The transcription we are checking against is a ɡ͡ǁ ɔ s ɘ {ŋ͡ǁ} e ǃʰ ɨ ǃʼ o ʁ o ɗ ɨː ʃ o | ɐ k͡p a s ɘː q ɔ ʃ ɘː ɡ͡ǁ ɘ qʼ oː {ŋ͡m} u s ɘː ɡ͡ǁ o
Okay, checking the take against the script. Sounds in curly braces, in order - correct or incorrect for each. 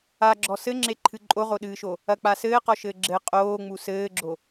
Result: correct, correct

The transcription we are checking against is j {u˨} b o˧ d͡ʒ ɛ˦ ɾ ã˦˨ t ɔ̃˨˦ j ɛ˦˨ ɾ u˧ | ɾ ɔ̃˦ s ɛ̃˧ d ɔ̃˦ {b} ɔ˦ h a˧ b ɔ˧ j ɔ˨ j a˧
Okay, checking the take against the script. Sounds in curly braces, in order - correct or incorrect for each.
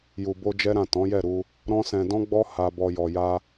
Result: correct, incorrect

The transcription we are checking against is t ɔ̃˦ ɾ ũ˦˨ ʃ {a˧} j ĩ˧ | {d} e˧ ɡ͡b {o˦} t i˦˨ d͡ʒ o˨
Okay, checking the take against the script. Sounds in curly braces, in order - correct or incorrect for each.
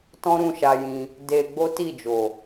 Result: correct, correct, correct

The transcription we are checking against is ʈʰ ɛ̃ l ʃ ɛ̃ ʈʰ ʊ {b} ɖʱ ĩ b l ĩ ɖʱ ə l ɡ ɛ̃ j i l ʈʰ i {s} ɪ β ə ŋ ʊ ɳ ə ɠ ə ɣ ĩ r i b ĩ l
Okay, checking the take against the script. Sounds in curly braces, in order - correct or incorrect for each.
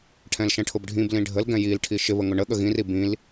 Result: correct, incorrect

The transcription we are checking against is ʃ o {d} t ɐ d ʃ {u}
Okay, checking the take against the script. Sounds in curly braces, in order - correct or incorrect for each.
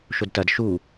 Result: correct, correct

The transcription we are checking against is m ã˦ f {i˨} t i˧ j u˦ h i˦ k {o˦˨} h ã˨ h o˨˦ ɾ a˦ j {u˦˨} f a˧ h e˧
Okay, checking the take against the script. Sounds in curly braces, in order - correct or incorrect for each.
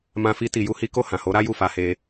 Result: incorrect, correct, correct

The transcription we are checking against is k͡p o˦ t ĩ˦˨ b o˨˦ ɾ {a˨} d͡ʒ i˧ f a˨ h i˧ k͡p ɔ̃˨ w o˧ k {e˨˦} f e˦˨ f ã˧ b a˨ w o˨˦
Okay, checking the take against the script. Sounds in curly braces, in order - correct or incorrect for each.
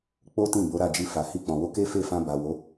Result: incorrect, incorrect

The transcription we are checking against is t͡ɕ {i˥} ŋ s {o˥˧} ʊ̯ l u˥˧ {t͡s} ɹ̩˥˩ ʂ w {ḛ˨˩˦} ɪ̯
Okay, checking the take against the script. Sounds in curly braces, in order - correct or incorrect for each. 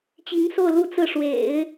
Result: incorrect, correct, correct, correct

